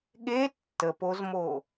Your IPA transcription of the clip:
ɠ e tː ə p o z m o

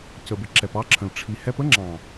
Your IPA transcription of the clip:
c ə˨ b ɪ˨ ǁ ɛ˨ p ɑ˦ ǁʰ ə̃˨ l ʈ͡ʂʰ i˨ h ɛ˦ p ə˦ ŋ͡ǁ ɑ̃˨

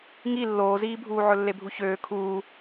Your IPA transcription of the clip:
ŋ i lː oː z iː bʱ uː ʕ ɵ lː e bʱ u ç øː kʰ uː

